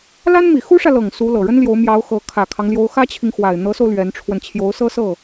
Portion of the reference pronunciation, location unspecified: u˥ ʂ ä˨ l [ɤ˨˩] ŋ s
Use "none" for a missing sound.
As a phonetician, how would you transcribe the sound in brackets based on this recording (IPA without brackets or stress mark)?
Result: ɤ˨˩